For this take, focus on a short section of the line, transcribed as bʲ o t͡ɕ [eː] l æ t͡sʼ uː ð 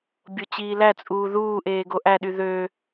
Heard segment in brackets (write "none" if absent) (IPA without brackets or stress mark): iː